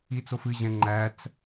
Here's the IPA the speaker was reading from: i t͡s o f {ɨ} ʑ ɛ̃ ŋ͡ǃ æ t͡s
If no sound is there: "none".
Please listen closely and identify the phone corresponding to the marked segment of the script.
ɨ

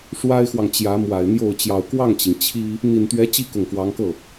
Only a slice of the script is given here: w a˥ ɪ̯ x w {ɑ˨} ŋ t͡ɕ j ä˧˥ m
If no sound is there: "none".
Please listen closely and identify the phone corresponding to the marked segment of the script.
ɑ˨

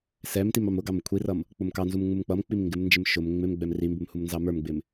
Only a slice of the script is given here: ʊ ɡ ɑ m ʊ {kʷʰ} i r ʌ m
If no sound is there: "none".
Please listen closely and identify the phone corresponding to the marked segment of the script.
kʷʰ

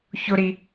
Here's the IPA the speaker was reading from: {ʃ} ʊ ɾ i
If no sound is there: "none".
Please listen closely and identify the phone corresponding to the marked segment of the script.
ç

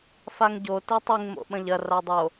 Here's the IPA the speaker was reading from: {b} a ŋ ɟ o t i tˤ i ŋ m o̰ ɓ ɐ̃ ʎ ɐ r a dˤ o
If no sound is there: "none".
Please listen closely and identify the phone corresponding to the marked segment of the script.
f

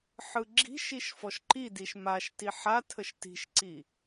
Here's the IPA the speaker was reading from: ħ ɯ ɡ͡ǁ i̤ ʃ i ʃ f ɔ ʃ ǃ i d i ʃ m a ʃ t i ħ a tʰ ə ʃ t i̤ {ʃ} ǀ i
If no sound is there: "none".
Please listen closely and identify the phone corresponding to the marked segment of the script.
ʃ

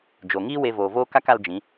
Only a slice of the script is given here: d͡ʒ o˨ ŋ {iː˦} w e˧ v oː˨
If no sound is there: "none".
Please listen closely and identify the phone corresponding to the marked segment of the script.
iː˦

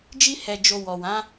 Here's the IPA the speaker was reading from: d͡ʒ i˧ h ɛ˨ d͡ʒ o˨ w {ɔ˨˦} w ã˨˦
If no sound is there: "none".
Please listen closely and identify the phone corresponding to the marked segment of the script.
ɔ˨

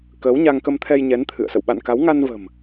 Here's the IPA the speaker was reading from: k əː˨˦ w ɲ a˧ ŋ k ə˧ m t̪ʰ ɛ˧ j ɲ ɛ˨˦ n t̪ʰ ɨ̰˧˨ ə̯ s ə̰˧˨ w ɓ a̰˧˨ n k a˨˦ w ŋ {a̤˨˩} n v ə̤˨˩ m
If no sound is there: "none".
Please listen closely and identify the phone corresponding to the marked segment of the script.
a˧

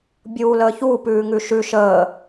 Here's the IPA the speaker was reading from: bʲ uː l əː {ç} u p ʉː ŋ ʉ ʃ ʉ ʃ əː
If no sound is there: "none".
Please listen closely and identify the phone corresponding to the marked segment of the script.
ç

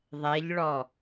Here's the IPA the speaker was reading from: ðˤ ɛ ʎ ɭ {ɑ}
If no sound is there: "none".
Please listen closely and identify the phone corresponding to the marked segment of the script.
ɔ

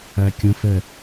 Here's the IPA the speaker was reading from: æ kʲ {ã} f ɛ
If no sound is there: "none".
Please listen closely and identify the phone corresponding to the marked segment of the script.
ə̃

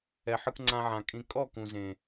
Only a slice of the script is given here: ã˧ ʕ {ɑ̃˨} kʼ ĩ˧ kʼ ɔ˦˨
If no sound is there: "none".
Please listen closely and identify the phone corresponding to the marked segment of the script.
ã˨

